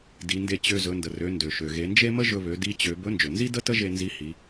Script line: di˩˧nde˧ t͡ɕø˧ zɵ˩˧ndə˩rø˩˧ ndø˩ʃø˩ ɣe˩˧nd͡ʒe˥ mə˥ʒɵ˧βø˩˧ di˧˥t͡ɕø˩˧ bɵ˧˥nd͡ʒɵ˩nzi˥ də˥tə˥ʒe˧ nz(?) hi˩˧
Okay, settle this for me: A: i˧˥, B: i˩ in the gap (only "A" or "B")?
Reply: A